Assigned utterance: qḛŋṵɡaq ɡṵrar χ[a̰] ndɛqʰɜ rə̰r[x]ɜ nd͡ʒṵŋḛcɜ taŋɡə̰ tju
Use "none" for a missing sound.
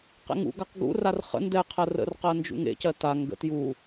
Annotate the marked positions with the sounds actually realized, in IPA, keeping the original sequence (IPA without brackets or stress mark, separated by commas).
ə̰, q